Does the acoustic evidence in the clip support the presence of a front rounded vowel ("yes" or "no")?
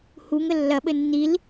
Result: no